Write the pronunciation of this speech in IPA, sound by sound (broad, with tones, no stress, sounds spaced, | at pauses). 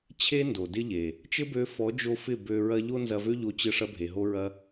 t͡ɕʰ e˦ n d o˨ d ɪ˦ ʎ e˨ | t͡ʃ ɘ˦ b ø˧ f ɔ˨˦ d͡ʒ o˧ f ɪ˦˨ b ø˧ ɹ ɐ˦ ʎ o˦ n z ɐ˧ v ø˦ ʎ o˧ t͡ɕ ɘ˧ ʂ ɐ˧ bʱ e˨ ɦ o˧ ɹ ɐ˧